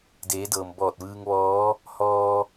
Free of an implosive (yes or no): yes